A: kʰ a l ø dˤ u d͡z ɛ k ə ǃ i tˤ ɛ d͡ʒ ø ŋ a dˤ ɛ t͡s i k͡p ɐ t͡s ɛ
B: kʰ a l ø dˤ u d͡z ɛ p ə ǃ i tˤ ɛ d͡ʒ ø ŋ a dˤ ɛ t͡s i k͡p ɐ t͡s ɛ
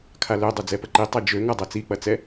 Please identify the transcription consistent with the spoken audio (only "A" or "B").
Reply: B